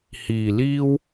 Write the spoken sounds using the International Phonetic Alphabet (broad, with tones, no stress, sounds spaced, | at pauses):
h iː˨˩ l iː˥ w